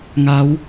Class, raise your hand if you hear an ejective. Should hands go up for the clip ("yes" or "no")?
no